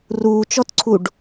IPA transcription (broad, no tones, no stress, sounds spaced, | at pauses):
r uː t͡ʃ ɔ t ǀʰ u ɖ